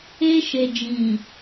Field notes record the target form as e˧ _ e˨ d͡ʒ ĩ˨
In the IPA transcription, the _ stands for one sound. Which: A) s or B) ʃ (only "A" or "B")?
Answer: B